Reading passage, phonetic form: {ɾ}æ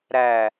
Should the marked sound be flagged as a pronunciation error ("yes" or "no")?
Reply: no